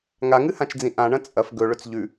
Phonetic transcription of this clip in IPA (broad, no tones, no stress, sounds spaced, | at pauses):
ŋ a ŋ ɨ h ã t͡ʃ d͡z ĩ ʔ ã ɳ ɐ̃ t͡sʼ ɐ f ɡ ɵ ɭ ɵ t͡s ʎ ʉ